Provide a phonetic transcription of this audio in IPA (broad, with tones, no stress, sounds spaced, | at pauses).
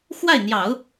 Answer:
x w a˥˩ ɪ̯ n̪ j ɑ˨˩˦ ʊ̯